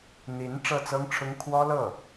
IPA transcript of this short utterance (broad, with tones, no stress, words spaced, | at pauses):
n̪i˧˥n ʈ͡ʂɤ˥˩t͡sɤ˥ŋʈ͡ʂʰʊ˥ŋ kʰwɔ˥ lɤ˥˩